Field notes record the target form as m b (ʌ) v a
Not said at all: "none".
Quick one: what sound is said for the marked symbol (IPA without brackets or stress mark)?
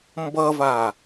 ʌ